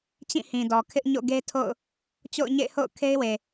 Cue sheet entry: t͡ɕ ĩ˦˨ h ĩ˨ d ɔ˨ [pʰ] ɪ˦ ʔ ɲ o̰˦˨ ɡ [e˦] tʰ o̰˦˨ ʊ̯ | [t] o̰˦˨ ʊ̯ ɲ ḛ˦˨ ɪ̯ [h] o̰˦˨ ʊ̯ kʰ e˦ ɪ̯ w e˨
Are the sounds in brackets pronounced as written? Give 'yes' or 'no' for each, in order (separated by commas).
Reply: no, yes, no, yes